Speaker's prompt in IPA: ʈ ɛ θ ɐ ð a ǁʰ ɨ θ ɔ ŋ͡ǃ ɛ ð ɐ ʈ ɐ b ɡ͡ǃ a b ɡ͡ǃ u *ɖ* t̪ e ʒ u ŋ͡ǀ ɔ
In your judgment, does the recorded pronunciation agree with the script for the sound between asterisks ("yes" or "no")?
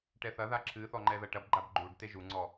yes